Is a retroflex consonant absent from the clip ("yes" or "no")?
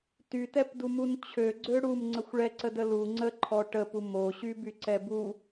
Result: no